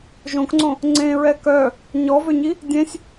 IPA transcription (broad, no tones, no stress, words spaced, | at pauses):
ʒõkŋ͡ǀõ | ŋ͡ǀẽɹɛ kœ | ɲɔvøɲi | dʲẽsʲ